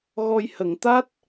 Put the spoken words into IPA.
ɣ ɔ˧ j h ə˨˩˨ ŋ t̪ a˦˥ t̚

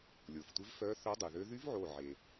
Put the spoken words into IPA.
lʲ o˩ f tʷ ɪ˧˥ v f œ˧˥ θ œ˧˥ dˤ y˩ ð ø˧˥ ð y˧˥ v ʕ o˧˩ ʕ e˩

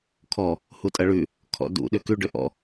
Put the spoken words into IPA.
kʰ ɔ | h u tʼ ɐ ɭ ʉ | kʰ ɔ̰ d ṵ ɗ ʏ k ʉ ɖ ʏ ʔ ɔ̰

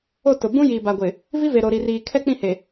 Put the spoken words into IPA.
o˦˨ t ʊ˨ b ũ˦ j iː˨ b a˨ ɡʷ ɪ˨ | v i˦ v e˨ ɾ o˨ ɾ i˨ r iː˨ kʰ ɛ˦ k͡p ĩ˦˨ h e˨

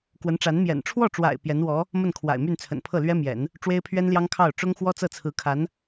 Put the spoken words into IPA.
k w ə˧˥ n ʈ͡ʂ a˧˥ n m j ɛ̰˨˩ n ʈ͡ʂʰ w ɔ˥˩ ʈ͡ʂ w a̰˨˩ ɪ̯ p j ɛ˧˥ n w ɔ˧˥ | m ə˥˩ n kʰ w a̰˨˩ ɪ̯ m y˥˩ n t͡sʰ ə̰˨˩ n pʰ ɤ˥˩ l ɥ ɛ˥ m j ɛ̰˨˩˦ n | ʈ͡ʂ w e˥ ɪ̯ pʰ ɥ ɛ˥ n l j ɑ˥ ŋ kʰ ɑ˥˩ ʊ̯ ʈ͡ʂ ʊ˥ ŋ x w ɔ˥ t͡s ɤ˥˩ t͡sʰ ɹ̩˧˥ kʰ a˧˥ n

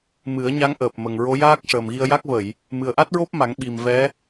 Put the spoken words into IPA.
m ɨ˨˩˦ ə̯ ɲ a˧˥ ŋ ʔ əː˨˩ p̚ m ə˨˩ ŋ ɹ o˧˥ j aː˦˥ k̚ ʂ əː˨˩ m ɣ i˧ ə̯ j a˦˥ k̚ v ə˨˩˨ j | m ɨ˨˩ ə̯ ʔ a˦˥ t̚ ɹ o˦˥ p̚ m a˨˩˦ ŋ ɓ i˨˩ m v ɛ˧˥

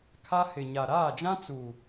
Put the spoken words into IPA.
kʰ a˦ h ɪ˨ ɲ a˨ ɾ aː˦˨ d͡ʒ ã˦ t͡s uː˨

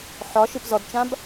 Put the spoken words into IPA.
ħ ɒ ʃ ɨ p z ɔ d t͡ʃ ã b

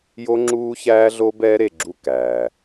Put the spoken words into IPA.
j o˦ ŋ͡ǁ uː˦ ç æː˦ ɮ o˦ b ɛː˦ ɾ e˨ ɡ͡ǁ u˦˨ k æː˨

